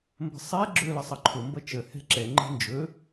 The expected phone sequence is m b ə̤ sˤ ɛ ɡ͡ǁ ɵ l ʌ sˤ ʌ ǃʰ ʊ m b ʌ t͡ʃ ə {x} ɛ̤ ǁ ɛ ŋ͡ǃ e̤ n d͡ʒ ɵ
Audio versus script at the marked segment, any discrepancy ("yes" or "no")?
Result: yes